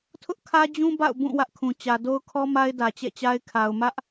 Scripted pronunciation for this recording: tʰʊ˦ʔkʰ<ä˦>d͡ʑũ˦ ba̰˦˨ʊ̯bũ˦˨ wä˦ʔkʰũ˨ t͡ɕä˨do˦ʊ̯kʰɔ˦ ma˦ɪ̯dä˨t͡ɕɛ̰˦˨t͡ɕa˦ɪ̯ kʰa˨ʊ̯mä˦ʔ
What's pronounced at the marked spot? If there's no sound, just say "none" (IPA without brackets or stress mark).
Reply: ä˦